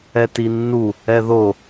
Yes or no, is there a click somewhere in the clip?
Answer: no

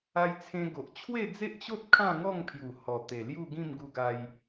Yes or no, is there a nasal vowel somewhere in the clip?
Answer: yes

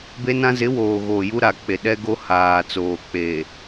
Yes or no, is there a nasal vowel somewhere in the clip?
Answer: yes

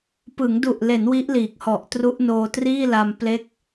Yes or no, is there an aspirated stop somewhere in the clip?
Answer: no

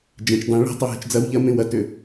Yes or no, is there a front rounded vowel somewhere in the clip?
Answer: yes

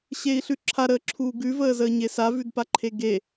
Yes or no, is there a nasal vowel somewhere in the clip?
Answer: no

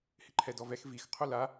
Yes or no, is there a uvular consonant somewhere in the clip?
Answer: yes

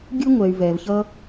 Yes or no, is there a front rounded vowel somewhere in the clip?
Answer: yes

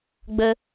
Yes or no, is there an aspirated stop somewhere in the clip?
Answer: no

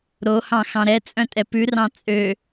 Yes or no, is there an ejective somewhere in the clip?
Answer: yes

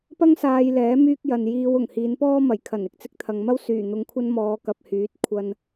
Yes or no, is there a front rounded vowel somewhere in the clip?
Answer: yes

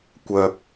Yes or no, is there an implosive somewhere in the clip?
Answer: no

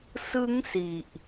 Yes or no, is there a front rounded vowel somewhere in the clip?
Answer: no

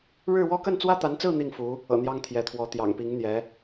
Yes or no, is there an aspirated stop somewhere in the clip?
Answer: yes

